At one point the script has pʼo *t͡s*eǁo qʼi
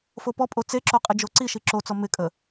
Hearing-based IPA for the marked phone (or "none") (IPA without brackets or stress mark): t͡s